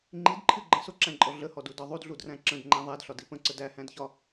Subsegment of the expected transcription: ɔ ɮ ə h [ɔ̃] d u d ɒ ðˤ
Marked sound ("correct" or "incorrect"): incorrect